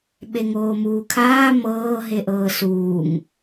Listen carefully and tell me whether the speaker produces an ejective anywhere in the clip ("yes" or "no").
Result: no